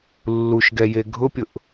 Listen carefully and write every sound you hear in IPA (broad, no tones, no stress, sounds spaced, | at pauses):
lː u ʃ ɡ ɛ j e ɡʱ ʊ pʲ ʊ ʔ